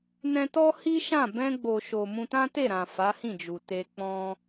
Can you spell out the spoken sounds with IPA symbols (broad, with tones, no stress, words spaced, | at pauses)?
nɛ̃˧tɔ˦hi˦ ʃã˦˨ bɛ̃˧ɡ͡bo˨ʃo˨ mũ˧tã˦te˦˨ɾã˨ fa˨˦hĩ˦˨d͡ʒu˨ te˧ k͡pɔ̃˧